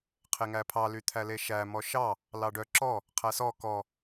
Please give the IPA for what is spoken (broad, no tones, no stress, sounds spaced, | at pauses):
qʰ e ŋ æ pʰ ɑ l y t̪ʰ æ l e ʃ æ m ɔ ʃ ɑ | l ɑ ɖ œ ǁ ɔ | qʰ æ s ɔ k ɔ